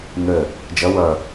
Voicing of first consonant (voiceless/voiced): voiced